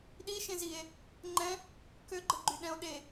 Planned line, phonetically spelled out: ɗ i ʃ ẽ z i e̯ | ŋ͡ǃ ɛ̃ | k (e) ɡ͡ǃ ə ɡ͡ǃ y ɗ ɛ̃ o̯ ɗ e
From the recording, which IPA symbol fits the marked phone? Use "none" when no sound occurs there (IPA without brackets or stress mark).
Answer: ø